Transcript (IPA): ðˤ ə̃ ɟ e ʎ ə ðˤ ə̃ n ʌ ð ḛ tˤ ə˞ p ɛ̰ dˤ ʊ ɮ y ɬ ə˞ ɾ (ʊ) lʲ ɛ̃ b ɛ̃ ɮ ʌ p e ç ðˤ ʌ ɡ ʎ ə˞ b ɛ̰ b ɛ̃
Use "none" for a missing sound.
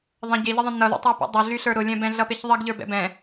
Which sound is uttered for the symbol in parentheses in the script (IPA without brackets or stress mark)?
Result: ʊ